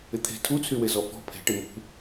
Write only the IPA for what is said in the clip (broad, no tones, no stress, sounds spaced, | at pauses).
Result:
ɪ t̪ʰ e̤ tʰ u t͡sʰ y w e z ɔ f ɔ̤ pʰ e̤ ʈ ɪ m ṳ